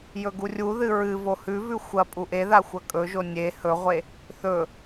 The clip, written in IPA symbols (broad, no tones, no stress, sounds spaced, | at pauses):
j ɵ ɡ u rʲ u ð ɨ ɹ ɨ v o h ʉ v ʉ xʷ ɐ pʼ u ʔ e ð a xʷ ɐ kʼ ɵ ʒ o nʲ e h ɵ ʁʷ e | θ ɵ